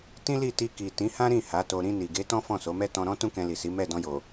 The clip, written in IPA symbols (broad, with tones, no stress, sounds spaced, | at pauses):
t ĩ˦ l i˦˨ t i˧ k i˨ t ĩ˨˦ h ã˦ ɾ ĩ˦˨ h a˨˦ t o˧ ɾ ĩ˧ n i˨ ɡ e˨˦ t ɔ̃˦ f ɔ̃˦˨ s o˨˦ m ɛ˦ t ɔ̃˧ ɾ ɔ̃˦ t ũ˦ k ɛ̃˧ l i˨ s i˨˦ m ɛ˦˨ d ɔ̃˧ j o˨